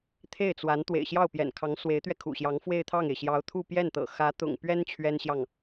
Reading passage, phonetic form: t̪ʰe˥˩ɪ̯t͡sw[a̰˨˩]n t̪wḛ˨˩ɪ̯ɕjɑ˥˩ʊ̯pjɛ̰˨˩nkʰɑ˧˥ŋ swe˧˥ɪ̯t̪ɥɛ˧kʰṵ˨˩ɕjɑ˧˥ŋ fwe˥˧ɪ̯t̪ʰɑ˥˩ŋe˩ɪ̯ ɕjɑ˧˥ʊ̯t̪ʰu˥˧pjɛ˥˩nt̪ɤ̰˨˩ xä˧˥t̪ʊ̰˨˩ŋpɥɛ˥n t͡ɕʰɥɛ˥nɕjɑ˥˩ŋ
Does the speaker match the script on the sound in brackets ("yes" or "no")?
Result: no